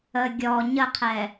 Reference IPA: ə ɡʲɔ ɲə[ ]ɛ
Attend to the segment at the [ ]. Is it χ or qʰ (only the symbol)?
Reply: qʰ